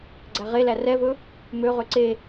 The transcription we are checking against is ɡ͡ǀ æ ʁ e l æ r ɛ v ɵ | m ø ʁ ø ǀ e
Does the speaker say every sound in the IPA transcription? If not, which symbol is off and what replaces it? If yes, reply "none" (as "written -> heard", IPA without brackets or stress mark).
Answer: none